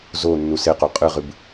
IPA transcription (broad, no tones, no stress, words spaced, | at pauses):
zo nːuseqo qʼɨʁɨb